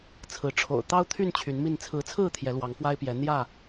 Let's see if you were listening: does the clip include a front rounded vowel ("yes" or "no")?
yes